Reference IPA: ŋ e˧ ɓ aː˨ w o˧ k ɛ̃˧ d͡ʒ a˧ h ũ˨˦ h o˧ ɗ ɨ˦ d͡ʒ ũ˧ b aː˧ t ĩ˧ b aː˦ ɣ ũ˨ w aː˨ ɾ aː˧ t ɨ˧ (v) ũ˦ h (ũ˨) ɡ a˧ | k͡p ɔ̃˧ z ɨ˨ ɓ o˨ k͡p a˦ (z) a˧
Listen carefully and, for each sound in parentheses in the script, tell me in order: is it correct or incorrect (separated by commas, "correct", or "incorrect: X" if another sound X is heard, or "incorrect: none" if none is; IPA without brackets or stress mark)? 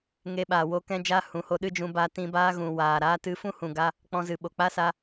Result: incorrect: f, correct, incorrect: s